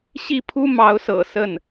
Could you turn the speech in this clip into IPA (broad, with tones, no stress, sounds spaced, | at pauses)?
ɕ i˥˩ pʰ u˥ m ɑ˧˥ ʊ̯ s ɤ̰˨˩ s ə˥˩ n